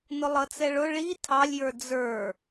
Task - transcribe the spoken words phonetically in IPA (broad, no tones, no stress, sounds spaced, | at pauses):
n ʊ lˠ ʌ t͡s ɛ ɭ ʊ ɭ i tʰ ɑ lʲ j ə˞ d͡z ə˞